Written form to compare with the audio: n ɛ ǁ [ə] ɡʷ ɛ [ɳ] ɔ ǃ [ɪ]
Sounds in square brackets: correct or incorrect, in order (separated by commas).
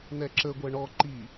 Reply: correct, correct, incorrect